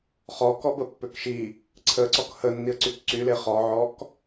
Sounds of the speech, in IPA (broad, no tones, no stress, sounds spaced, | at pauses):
χ ɔ k ɔ b ə pː ø k ʃ i | ǀʰ ə ǀ ɔ k h ə nː i ə̯ ǀ y k ǀ y l e χ ɔ ʕ ɔ k